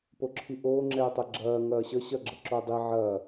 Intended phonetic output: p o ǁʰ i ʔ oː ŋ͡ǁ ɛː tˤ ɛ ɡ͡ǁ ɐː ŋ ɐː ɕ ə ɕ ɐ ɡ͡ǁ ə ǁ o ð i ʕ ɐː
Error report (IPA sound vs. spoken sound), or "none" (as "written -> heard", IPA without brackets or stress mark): ð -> dˤ